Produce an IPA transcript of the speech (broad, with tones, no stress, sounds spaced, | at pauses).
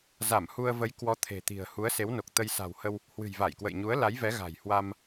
z a˧˩ m h u˧ ə̯ v ə˨˦ j k w ɔ˨˦ t̪ʰ e̤˨˩ t̪ i̤˨˩ ə̯ h u˨˦ ə̯ s e˨˦ w n o˨˩ k̚ t̪ ə˧ j s a̤˨˩ w h ə˧ w | h w ɨ̤˨˩ j v a˧˩ j k w ə̰˧˨ j ɲ u˨˦ ə̯ l a˨˦ j v ɛ˨˦ ɣ a̤˨˩ j h w a˧ m